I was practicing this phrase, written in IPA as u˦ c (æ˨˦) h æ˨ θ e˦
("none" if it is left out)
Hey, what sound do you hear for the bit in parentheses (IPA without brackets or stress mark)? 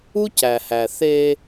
æ˨